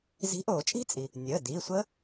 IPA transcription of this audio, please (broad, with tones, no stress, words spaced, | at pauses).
zi̤˨˥ʔoː˨˩˦t͡ʃʼi̤˦˥t͡sʼi˩ | nʲəː˩˧˩diː˩˧˩sʷə˦˥